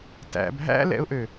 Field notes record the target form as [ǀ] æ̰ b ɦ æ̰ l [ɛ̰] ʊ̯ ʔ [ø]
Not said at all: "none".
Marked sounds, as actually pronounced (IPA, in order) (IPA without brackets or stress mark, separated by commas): t, ɛ̰, ø